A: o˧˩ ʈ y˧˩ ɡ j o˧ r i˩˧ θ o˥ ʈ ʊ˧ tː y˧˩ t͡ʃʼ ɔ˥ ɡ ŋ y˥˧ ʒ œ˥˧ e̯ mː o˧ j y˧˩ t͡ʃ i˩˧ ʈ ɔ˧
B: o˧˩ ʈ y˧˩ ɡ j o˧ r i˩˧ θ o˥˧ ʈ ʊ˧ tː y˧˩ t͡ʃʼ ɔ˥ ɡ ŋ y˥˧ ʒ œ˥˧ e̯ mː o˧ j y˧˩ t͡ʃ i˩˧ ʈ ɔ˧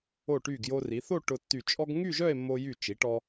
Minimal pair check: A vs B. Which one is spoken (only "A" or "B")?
B